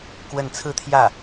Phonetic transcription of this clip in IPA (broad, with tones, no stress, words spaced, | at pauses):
kwə˥˧n t͡sʰɹ̩˥˧t̪ʰjä˥˩